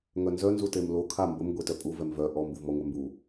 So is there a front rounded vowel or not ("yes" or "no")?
yes